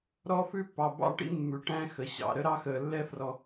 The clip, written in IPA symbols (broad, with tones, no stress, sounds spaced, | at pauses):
ɾ ɔ˦ f ʉ˦ pː ɑ˨ b ɑ̰˦ ʈ ḭ˦ mː ʉ˨ ʈ æ̃˦ x ə˨ ɕ ɑ̰˨ ɾ ə˦ ɾ ɑ˦ x əː˨ lː ɛ˦ f r ɔ˨